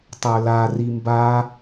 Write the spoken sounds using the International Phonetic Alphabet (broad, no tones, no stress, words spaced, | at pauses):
tˤə˞la rimba